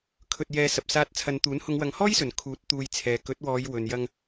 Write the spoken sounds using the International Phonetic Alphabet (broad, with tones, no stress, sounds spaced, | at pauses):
kʰ ɵ˧ t̚ j ɛː˨˧ s ɐ˨ p̚ s aː˧ t̚ t͡sʰ ɐ˨˧ n t̪ uː˨˥ n h ʊ˨˧ ŋ w ɐ˨˧ ŋ h ɔː˥ j s ɵ˨˩ n kʰ uː˨˥ t̚ t̪ uː˧ j t͡sʰ ɛː˨˧ k ɵ˨˥ t̚ w ɔː˨˧ j w ɵ˨ n j ɐ˧ ŋ